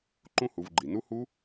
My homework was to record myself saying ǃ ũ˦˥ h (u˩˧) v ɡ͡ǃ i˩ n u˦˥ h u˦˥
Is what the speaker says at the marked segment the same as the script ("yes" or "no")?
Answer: yes